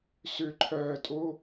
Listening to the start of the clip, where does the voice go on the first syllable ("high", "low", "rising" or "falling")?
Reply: falling